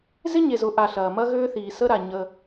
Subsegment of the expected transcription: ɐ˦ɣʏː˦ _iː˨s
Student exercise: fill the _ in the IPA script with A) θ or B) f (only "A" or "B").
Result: A